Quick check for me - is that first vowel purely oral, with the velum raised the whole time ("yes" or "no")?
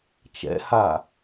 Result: yes